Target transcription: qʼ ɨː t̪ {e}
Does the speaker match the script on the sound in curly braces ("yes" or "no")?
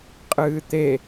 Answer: yes